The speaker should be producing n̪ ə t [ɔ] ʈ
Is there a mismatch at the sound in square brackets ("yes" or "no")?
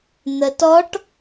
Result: no